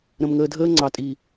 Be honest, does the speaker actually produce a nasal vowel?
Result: yes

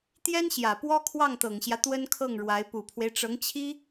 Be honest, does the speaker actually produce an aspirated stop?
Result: yes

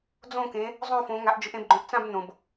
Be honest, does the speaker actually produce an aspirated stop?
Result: no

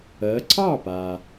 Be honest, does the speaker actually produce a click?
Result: yes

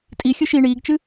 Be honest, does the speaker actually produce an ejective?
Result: yes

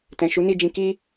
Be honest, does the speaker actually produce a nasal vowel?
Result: yes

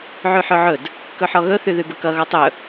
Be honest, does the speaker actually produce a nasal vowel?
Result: no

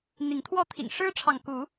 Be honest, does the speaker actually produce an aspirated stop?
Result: yes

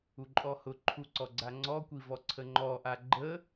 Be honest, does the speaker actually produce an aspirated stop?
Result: yes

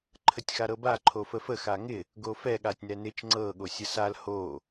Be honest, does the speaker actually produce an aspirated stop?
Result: yes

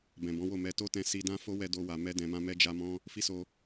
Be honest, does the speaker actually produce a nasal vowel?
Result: yes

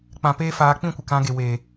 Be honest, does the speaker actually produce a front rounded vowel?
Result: no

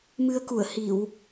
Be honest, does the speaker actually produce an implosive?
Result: no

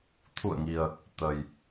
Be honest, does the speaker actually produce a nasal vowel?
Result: no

